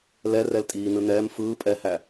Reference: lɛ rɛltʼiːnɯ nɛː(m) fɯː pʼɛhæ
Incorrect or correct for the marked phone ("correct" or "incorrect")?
correct